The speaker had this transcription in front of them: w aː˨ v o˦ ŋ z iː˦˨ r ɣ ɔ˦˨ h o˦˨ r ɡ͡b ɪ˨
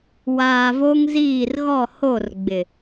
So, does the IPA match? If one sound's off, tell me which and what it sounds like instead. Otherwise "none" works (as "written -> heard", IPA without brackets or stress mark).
none